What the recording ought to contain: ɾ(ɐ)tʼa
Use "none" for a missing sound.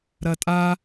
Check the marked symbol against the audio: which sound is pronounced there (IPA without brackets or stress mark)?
ɐ